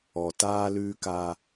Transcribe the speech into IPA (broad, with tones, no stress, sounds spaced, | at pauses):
ɔ˨ t aː˦ l ʉː˦ k a˦